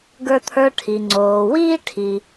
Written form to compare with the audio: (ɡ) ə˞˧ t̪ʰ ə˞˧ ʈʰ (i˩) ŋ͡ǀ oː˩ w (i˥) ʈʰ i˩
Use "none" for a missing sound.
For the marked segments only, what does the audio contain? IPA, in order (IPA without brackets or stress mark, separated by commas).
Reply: ɡ, i˩, iː˥